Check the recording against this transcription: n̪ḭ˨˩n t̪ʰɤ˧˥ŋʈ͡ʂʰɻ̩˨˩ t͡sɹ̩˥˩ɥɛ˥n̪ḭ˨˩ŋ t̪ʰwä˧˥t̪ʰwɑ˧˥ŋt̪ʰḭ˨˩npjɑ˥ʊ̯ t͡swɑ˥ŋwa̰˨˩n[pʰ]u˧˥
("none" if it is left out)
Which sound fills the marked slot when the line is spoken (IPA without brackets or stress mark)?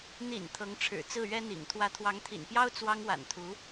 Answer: t̪ʰ